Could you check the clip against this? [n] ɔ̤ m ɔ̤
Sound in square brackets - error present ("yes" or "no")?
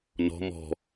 no